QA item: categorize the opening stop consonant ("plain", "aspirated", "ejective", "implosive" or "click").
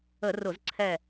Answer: click